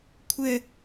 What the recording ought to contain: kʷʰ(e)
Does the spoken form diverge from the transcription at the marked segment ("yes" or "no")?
yes